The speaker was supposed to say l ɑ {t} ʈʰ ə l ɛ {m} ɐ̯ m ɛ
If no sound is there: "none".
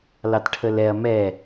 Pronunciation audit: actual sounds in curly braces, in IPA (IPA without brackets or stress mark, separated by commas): t, none